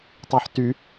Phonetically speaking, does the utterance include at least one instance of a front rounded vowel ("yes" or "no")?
yes